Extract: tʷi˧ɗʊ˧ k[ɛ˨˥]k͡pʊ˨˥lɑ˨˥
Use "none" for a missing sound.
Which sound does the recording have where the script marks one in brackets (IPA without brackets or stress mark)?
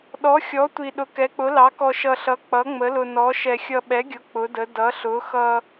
ɛ˨˥